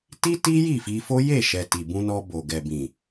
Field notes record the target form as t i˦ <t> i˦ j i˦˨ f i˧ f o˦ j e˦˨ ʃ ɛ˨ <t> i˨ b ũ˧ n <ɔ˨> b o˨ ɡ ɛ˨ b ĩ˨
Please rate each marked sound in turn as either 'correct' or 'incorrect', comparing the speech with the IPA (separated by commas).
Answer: correct, correct, incorrect